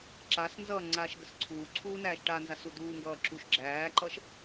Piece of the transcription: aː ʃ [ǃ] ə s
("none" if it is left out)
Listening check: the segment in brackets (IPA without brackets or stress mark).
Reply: ɡ